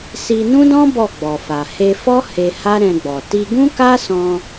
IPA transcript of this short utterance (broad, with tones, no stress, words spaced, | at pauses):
si˧nũ˦dɔ̃˦ bɔ˦˨ɡ͡bɔ˨fa˨ he˧fɔ˦ he˧ha˦ɾɛ̃˧ɡ͡bɔ˨ ti˧ɡũ˦ka˦sɔ̃˧